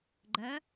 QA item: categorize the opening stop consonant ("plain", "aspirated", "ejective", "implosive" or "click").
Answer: click